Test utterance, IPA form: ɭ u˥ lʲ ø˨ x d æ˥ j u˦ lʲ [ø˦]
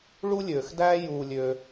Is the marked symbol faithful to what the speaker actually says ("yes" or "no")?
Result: yes